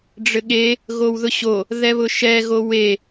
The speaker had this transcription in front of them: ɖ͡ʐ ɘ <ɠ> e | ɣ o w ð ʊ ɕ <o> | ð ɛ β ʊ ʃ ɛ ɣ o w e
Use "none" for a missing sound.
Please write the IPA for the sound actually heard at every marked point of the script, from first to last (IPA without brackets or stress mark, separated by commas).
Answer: ɠ, o